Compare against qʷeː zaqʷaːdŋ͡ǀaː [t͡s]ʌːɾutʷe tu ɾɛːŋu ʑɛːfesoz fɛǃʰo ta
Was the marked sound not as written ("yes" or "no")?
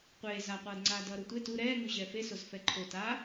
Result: yes